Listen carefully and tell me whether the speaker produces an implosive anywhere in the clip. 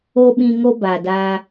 yes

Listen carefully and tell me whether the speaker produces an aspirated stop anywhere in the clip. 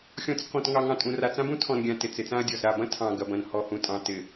yes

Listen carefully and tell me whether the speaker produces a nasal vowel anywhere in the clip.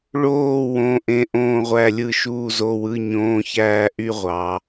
yes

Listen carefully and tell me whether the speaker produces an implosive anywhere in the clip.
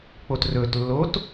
no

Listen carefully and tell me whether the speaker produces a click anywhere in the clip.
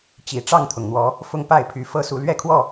no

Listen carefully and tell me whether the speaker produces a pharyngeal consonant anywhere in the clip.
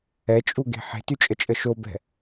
yes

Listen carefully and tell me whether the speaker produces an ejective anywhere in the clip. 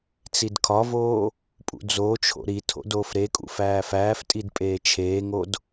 yes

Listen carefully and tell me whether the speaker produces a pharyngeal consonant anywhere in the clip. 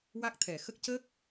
no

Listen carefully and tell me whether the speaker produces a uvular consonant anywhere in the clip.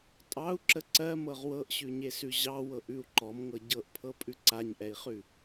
yes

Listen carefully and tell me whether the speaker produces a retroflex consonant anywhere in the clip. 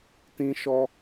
no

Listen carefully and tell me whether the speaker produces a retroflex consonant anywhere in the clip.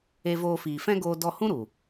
no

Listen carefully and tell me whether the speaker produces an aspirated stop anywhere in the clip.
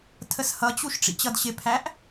yes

